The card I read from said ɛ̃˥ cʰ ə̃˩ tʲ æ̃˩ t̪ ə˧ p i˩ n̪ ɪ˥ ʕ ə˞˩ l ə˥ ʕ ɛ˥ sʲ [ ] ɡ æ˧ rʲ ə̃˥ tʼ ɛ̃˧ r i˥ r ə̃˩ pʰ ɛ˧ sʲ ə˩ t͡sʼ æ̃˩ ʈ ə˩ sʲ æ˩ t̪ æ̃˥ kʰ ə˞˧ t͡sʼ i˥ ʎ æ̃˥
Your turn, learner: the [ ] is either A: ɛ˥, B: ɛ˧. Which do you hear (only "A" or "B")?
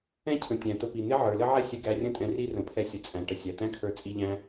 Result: B